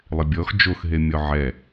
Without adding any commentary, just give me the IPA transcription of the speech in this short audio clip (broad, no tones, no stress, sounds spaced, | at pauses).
lˠ ɪ bʲ ɔ x d͡ʒ o x ɦ e mʲ ɔ ʕ ɛ